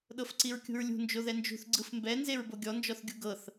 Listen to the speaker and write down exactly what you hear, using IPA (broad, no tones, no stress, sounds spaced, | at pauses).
ɗ ɤ f ǀ i ɹ kʲ ṳ ɹ lʲ ṳ n d͡ʒ o ð ɛ n d͡ʒ ṳ θ ɡ͡ǀ ɯ f m b ɛ n z e ɹ b o ɡʲ ɔ n d͡ʒ ɔ θ ɡʲ u ɡ ɤ θ